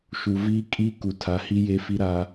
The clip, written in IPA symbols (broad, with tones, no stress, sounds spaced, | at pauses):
ʃ u˨ v iː˦ kʼ i˦ k u˨ tʰ a˨˦ h i˦ j e˦ f i˦ ɾ a˦